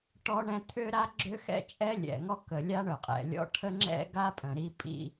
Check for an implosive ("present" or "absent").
absent